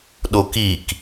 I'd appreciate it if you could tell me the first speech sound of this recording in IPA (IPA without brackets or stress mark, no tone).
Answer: ɗ